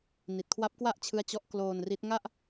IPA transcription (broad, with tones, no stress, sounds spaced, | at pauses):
n i˨˩ t̚ kʰ w a˦˥ p̚ k w a˥˩ ʔ t͡ɕʰ ɯ˦˥ a̯ t͡ɕ ɔ˦˥ ʔ k l oː˧ n r i˦˥ t̚ ŋ a˥˩ ʔ